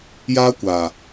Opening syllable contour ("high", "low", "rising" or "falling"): high